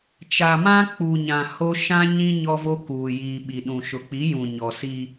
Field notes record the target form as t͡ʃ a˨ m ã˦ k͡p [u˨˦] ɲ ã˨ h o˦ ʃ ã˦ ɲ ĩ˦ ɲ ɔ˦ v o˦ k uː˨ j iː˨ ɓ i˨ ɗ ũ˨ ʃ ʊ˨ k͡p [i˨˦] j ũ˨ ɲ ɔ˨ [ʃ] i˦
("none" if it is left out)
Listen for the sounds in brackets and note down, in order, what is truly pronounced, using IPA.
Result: u˨, i˨˦, s

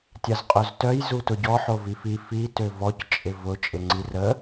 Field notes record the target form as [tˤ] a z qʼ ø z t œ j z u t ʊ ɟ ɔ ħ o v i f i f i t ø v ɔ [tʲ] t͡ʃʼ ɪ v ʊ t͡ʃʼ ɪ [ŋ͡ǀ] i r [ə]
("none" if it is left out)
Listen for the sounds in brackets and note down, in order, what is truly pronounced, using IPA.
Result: tʲ, c, ŋ͡ǀ, ə

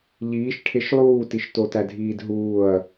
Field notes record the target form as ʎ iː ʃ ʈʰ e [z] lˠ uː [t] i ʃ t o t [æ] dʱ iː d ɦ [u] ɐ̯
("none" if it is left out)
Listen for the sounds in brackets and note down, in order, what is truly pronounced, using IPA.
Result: ʃ, t, æ, uː

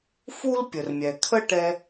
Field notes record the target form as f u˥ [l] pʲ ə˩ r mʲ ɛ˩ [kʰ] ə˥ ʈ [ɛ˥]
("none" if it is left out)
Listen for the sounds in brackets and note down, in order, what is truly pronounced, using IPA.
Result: l, kʰ, ɛ˥

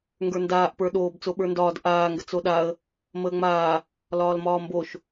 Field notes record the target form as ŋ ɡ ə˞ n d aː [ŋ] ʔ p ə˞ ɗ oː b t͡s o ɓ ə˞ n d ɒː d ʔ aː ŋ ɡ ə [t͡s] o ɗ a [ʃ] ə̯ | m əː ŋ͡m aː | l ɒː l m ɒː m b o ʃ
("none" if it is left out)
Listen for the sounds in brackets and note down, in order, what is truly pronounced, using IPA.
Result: none, t͡s, none

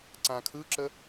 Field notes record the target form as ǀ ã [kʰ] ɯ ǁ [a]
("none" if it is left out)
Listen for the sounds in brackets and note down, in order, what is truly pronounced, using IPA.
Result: kʰ, ə

